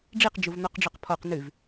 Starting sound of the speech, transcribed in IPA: ɖ͡ʐ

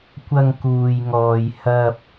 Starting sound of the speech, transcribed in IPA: kʷ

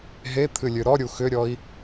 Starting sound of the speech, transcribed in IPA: ɦ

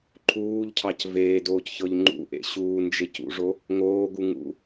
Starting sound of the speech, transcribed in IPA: ǃʰ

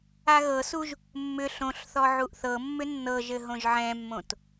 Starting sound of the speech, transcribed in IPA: a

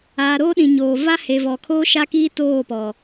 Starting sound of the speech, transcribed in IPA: aː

